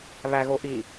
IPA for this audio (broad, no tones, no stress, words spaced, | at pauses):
βæɣoʔi